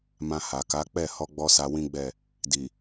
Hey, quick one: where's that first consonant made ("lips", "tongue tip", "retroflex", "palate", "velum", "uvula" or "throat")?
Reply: lips